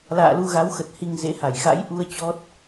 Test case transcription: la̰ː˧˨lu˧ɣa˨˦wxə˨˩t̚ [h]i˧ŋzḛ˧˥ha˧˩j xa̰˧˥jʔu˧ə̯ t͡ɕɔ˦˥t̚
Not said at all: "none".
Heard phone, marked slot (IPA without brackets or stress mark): h